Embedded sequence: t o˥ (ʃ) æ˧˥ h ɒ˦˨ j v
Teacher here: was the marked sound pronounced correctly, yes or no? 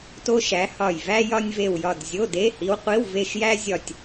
yes